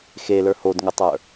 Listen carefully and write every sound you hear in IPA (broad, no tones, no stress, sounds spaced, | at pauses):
x e l ə˞ h o d ŋ ʊ tˤ ə˞